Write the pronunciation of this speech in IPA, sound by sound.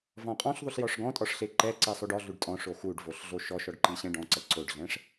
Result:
v ɔ̃ qʼ ɔ̃ ɬ ðˤ u ɬ j ɔ ʂ ɡ ɔ̃ tʼ ɔ ʂ ɬ e ǃ ɛ ǀ ɛ sˤ o ɖ ɔ ɮ u ɖ tʼ ɔ̃ ʂ o x u ɖ v o ɬ ɮ o ʃ ɔ ʃ ɔ ɖ ǃ i ɕ ɛ̃ ɖ ɔ̃ ǀ ɛ ǀ o ɖ ɮ ɛ̃ ʂ

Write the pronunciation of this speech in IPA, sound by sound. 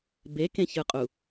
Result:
b e k ẽ ç ɯ qʼ u

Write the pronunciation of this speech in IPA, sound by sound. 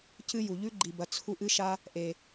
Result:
c ɨ˦ j u˨ ʎ ʉ˦ ɡ͡ǃ i˨ b ɐ˨ t͡sʰ u˧ ʔ ɨ˦ ʃ a˦ | ʔ e˨

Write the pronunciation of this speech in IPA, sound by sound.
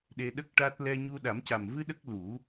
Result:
ɗ e˧ ɗ ə˦˥ k̚ ʈ a˦˥ t̚ l ɛ˧ ɲ u˧ ɗ a˨˩˦ m c a˨˩ m v ɨ˧ ɗ ə˦˥ k̚ l u˨˩˦

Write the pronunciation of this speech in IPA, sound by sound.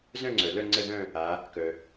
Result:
z œ̃˦˨ ŋ͡ǀ œ˩ l œ˦˨ ŋ͡ǀ ə˦˨ ð œ̃˦˨ | a˩˧ | k œ˩

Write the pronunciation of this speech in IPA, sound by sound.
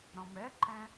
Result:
ɾ ɔ̃ m ɛ ǃ ɛ̃

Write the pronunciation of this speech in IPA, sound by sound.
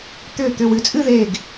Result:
t̪ ʏː˧˩ t̪ ʏ˩˧˩ w ɨ˩˧ t͡sʼ ɨ˥˧ ð eː˧˩ ɡ

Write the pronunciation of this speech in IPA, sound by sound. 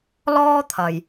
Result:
l ɔː˥ t̪ʰ ɐ˨ j

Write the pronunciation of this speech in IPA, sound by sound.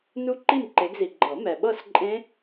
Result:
n u˦˥ ǃ i˥˨ m ǃ e˨˦ ɡ z i˨ ɡ͡ǃ ɤ˨˩˦ m ɛ˨ ɓ ɤ˥˨ s ǃʼ ẽ˦˥

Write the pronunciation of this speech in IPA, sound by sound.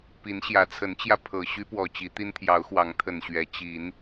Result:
p i˨˦ n ɕ j ä˨˦ t͡sʰ ə˨˦ n t͡ɕ j ä˧ pʰ ɤ˨˩ ɕ y˦ p w ɔ˨˩ t͡ɕ i˨˦ t̪ i˦ n t̪ʰ j ɑ˨˦ ʊ̯ x w ɑ˨˦ ŋ t̪ʰ ə˨˩ n ɕ ɥ ɛ˨˦ t͡ɕ i˨˦ n

